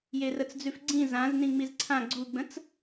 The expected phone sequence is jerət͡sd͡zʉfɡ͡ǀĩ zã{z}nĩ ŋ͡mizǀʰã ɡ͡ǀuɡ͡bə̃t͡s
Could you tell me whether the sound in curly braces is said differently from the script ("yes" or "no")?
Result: no